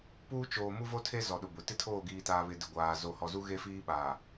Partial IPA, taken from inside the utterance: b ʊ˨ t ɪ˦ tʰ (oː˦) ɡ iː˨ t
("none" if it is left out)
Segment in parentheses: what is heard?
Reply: oː˦˨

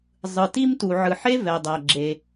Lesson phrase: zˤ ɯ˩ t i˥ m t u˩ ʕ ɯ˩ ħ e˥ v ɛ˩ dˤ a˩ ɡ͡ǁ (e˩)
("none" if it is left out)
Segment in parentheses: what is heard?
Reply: e˩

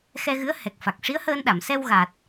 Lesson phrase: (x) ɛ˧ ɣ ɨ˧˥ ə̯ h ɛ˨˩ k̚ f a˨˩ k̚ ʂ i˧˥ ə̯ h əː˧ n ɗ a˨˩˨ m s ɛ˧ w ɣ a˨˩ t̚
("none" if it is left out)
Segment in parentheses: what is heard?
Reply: x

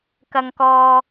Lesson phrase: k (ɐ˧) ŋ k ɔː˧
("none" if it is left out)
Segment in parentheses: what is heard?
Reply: ɐ˧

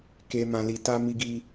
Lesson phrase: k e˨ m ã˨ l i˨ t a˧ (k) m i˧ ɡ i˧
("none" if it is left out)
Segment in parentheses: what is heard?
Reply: none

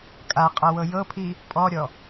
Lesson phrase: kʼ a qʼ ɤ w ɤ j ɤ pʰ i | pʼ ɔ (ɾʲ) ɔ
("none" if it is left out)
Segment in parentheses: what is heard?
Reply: ɾʲ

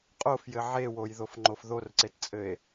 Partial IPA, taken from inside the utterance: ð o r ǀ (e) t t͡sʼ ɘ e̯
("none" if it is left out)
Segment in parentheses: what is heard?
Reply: e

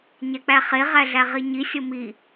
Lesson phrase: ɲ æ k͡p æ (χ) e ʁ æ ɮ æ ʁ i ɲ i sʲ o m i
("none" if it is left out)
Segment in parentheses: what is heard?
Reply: χ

